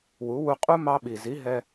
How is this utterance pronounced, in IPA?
wu˩˥wu˧qʼu˦˥ mɑ˧ɓi˩zi˩˥ ɦɛ˧

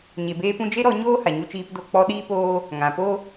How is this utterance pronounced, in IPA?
ɲe˨beː˧ pũ˦ d͡ʒe˦ɾɔ˧ ɲoː˦ha˨ ɲu˧t͡ʃiː˧pdo˧ k͡pɔ˧ ɗiː˦poː˦ | ŋã˨po˦

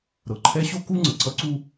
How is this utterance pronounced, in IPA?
ɾɤ˩ǃʰɛ˦ɕo˥ku˥ ŋ͡ǀə˩ǀʌ˦ǀu˦

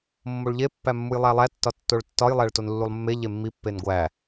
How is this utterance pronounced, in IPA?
mːoɭʎe pːæmːujlˠælˠæ tːɒtːoɭtːɒj lˠæɭtonlːulˠmːe ʎemːi pːenɡʷæ

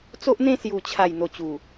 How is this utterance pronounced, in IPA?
t͡so˦ʔn̪ẽ˥˧ sju˨˩t͡ɕʰa˨˩j n̪o˨˩t͡ɕu˨˩

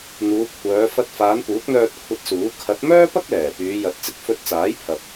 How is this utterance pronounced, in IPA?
n̪uː˨˧kʷʰœː˨˧ fɐ˧t̚faː˨˧n puː˨˥k̚n̪œː˧t̚ kʷʰɐ˧t̚suː˨˥ kʰɐ˨˥t̚mœː˥pɐ˥k̚lɛː˨˩ pyː˨˧ jɐ˨˥t̚t͡sɪ˨˥k̚ fɵ˧t̚t͡saː˨˥j pʰɐ˨p̚

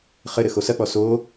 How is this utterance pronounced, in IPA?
χɘ ɾɘxosɐk͡pɔ so

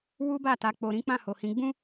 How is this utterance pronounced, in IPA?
wu˦ba˦˨ta˨˦ k͡po˧ɾĩ˦ k͡pã˦˨ho˨hĩ˨˦ ɡ͡bũ˦

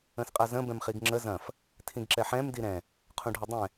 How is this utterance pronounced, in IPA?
ə̃sqʼazə̃ bɛ̃mχiɡŋ͡ǁə zɐ̃f | tʰĩɡǁɛħɛ̃m diɾɛ̃ | qʰũɖʱɐdˤɛ̃

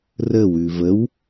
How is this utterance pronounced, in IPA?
rəwʉ vəw

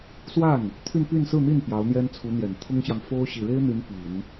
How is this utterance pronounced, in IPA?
swa˥˩n | t̪ʰy˥˧npy˥˧nsɹ̩˥˧n̪i˥˩n pjɑ˧˥ʊ̯n̪jɛ˥nt͡sʰu˧˥n̪jɛ˨˩n t̪ʰʊ˥ŋɕjɑ˨ŋ fo˥ʊ̯ ɕi˨˩ɻe˥ɪ̯n̪y˧˥n pi˨˩˦n

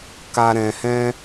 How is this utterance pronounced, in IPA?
ka˨ɾɛ̃˨hɛ̃˧

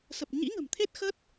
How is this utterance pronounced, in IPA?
sə˨˩p̚ ɲḭ˧˥ŋə̤˨˩mt̪ʰe˦˥t̚ xə˦˥t̚

